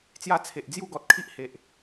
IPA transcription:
t͡sja˥˧t͡sʰe˨ʔ d͡zju˥˧ɡɔ˨t̚kʰi˦ʔ he˨ʔ

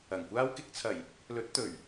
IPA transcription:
ɐ˨˩ŋkʷaː˥w kɪ˧k̚t͡sʰɐ˨˩j | lɵ˨˥t̚ t̪ɵ˨˩ɥ

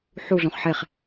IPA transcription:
ħuɮõχ ħeχ

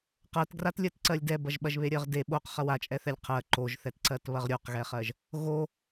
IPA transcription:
qɜtɡratlʲɜt ǀɜlʲdɛbɐʒ ɓɐʒβeɾʲɜʁde ɓoq χɐwat͡ʃʼɛθɛlʲ qʰɜ ǃoʒθɛtǀɜt βɐʁɾʲoqɣɛχɜʒ | ɣo

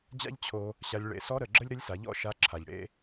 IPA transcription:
d͡ʑa̰˥ʎ t͡ɕʰo˧ | ɕa˧lʲɭḛ˧ sɔ˧˥ɾə˩ ɡ͡ǁə˥lʲɾə˧˥lʲsa˩˧ʎɔ̰˥ ʃa˧ ǁʰa˩ʎ ɽḛ˥

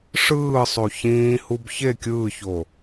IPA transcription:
ʂɯː sˤoçĩːhub çe kʲɯːço

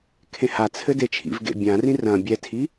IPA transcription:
kʰẽhat͡sʰɘ det͡ʃʰḭvɡḛ bʲãrĩ rɐ̃ bʲɛtʰi

